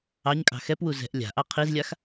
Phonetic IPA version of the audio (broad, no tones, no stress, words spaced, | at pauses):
ɑɲkʼɑ̤ xɛpwu zɛ̤ʔ lʲa̤ʔɑ qʰizlʲax